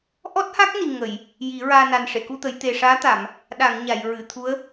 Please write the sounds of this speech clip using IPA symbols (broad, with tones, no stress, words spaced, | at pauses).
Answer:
ʔɔ˦˥t̚ha˦˥k̚ni˨˩ ŋə˨˩˨j | ji˨˩˦ɹaː˧ na˨˩nʂe˨˩˨ku˧t̪ə˨˩˦j t̪e˨˩ʂaː˧˥t̪a˨˩˨m | ɗa˨˩˨ŋ ɲa˨˩˨jɹɨ˨˩˨t̪ʰu˧˥ə̯